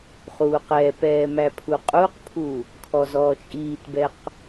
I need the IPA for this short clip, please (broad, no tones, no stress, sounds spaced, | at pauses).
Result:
χ uː q ɛ p ɛː m æ pʰ u qʼ u q pʰ u | kʰ ɔ z ɔː t͡ʃʼ iː t b ɛ q